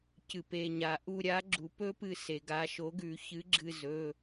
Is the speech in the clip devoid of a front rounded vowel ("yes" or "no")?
yes